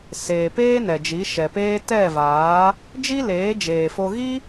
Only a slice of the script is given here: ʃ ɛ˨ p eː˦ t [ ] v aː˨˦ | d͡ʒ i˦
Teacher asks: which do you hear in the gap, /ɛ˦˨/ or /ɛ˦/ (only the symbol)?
ɛ˦˨